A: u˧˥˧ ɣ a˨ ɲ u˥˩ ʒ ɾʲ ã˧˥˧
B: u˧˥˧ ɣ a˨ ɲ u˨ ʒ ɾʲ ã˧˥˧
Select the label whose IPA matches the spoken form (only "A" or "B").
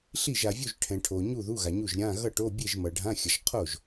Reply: A